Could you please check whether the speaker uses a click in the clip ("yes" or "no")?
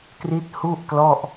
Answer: no